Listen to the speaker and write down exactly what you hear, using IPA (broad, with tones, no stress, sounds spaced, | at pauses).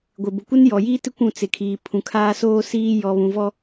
ɡʷ ɪ˨ b ʊ˨ kʷ ɪ˦ n j ɔ˨ j iː˦ t ɪ˦ kʷ ũ˦˨ t͡s ɪ˨ kʰ iː˨ pʰ ũ˨ kʰ aː˦ s oː˦ s iː˦ j ɔ˨ β ũ˨ v ɔ˦